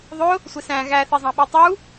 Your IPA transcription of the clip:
ðˤʊ | sʷɪsæ̃ ɣæθizˤɑ̃ ɓitˤu

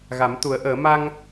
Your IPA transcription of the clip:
ɣa˨˩˦mt̪u˨˩˦ə̯ʔəː˨˩˦ ma˧ŋ

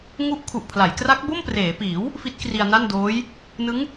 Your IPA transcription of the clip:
ŋu˦˥ʔkʰu˨˩ʔpʰla˩˦jkra˦˥k̚ bo˥˩mpreː˩˦piː˩˦w | fi˦˥t̚kri˧a̯na˥˩ndoː˦˥j | nɯ˦˥ŋ

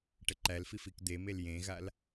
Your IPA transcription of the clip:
ʈəǃælfif ikd̪emel jẽɣal

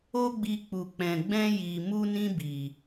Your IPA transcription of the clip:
o˦ɡ͡bi˧k͡pu˨k͡pɛ̃˨ ɡ͡bɛ̃˧ji˨mu˧nĩ˧ bi˨

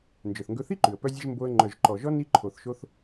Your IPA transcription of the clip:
nd͡ʒœ˩θŋɡɵ˧θi˥ǃʉ˩ə̯ pœ˧zʲɛ˧ʒ mbo˧ə̯ ŋ͡ǃœ˩ʒǃɔ˩ʒɔ˧ ni˧ǃʰo˩θʃo˧θ

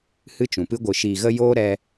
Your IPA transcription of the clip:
hɨ˦t͡ʃũ˨pɨ˦ ɡʷɨ˨ʃiː˨ɣə˧ joː˦ɾɛ˧

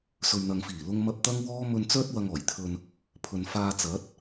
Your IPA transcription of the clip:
sɵ˨ɥn̪ɐ˨ŋfiː˨˩ lʊ˧ŋmɐ˧p̚ t̪ɐ˥ŋwɔː˥ mɵ˧nt͡sœː˥t̚ wɐ˧ŋɔː˨˩jt̪ʰɵ˧n | pʰɵ˨nfaː˧t͡sɐ˨˥t̚

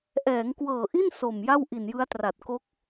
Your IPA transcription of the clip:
ʔɛː˩˦ŋkwɤː˨˩ʔi˥˩n so˨˩m ja˥˩wʔi˨˩njɯ˦˥a̯tra˨˩t̚ ko˦˥k̚

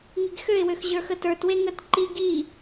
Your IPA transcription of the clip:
ŋiɡxøɪ̯wøx ʑə˞xətə˞twe ŋət ǃi ɡi

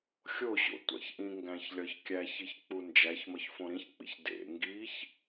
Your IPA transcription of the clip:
xʲoɕo̰ tʷæ̰çʔĩŋɡæ̃ç lʲɒçkʲæçiç k͡pund͡ʒæçmɒç fõɾĩçk͡pḭç dḛ ŋɡiç

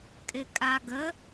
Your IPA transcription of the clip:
kʼɪkʼaɡə

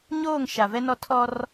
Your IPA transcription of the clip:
ɲoː˦˨ŋ ʃa˨vɛ˦nɔ˦ tʰɔ˦r

